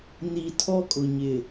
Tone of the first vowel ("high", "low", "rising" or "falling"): low